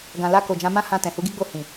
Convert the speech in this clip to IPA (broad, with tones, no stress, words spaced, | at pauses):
ɡã˨la˧ ko˨d͡ʒã˨˦mã˦hã˧ tɛ̃˨hu˨˦ɡi˦ɡ͡bo˦˨ hĩ˨